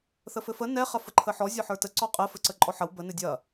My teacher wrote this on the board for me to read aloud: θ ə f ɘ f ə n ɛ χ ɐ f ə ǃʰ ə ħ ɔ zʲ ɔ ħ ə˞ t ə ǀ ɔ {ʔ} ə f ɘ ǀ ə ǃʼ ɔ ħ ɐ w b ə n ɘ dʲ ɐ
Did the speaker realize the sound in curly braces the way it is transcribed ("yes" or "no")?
no